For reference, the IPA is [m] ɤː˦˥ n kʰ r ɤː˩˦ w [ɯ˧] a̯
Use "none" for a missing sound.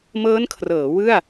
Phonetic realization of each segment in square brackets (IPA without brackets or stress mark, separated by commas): m, ɯ˥˩